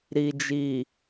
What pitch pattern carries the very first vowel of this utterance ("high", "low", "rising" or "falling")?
low